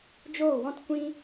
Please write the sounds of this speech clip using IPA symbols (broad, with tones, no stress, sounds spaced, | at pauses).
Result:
d͡ʒ oː˦˨ w ɔ̃˦ t kʷ ĩ˦